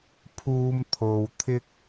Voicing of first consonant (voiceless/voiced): voiceless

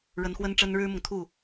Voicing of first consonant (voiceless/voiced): voiced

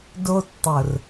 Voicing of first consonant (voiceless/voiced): voiced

